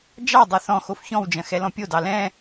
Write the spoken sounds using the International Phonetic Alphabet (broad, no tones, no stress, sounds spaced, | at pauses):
d͡ʒ ɑ dˤ ø θ ɔ̃ x o f ç ɔ̃ w d͡ʒ ɐ̃ x ɛ l ɔ̃ pʲ o d ɑ l ɛ̃